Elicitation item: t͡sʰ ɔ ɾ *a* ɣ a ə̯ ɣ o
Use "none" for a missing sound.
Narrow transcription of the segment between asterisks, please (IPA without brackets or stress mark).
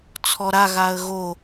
a